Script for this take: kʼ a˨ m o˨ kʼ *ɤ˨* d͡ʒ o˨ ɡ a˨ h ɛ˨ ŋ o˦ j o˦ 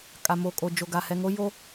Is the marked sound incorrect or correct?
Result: incorrect